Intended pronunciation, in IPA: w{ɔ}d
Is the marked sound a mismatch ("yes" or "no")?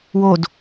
yes